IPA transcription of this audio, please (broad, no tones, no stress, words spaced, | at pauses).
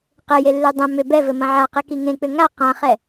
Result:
qɘjelːe dˤɛ̃ mʏ bɛvɘmɐ̃ ʕa qekiŋẽk͡pʏ ŋa qãχɛ